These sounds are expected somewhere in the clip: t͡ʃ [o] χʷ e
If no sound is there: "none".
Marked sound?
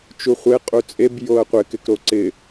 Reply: u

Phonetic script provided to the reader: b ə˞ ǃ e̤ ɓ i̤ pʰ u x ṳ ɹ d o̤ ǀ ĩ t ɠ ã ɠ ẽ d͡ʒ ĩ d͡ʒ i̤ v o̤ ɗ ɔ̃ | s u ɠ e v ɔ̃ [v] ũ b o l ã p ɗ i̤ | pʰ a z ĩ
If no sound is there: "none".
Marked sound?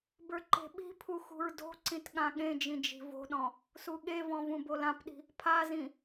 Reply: v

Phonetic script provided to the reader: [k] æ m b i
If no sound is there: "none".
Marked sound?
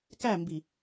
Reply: k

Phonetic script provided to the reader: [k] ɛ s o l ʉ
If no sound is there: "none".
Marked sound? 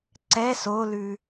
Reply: ǀ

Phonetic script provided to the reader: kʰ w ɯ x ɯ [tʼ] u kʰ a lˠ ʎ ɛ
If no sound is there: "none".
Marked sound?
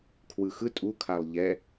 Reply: tʼ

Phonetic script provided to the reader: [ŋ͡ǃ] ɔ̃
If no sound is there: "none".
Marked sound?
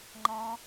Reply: ŋ͡ǃ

